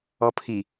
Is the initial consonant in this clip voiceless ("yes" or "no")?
yes